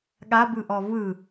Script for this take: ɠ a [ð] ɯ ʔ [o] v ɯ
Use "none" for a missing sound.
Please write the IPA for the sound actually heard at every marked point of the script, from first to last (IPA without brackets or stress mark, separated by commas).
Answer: b, ɔ